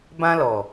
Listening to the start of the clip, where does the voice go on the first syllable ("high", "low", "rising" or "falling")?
high